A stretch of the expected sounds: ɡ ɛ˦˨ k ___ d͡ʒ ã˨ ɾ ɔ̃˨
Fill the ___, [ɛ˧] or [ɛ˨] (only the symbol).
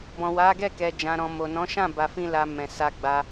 ɛ˨